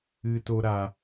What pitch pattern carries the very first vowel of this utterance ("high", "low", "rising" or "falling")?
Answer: high